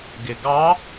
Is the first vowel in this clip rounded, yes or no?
no